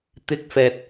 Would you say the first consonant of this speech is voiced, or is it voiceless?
voiceless